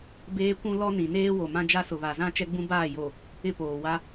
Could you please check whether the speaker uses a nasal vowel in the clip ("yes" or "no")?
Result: yes